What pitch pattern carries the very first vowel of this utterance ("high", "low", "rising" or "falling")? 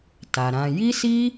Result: low